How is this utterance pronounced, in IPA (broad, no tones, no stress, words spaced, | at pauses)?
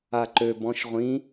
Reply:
aǃø bɔ̃ʃʁʷĩ